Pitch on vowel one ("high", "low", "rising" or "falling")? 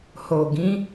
low